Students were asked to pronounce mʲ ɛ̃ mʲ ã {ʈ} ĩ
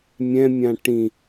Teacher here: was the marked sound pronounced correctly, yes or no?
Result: yes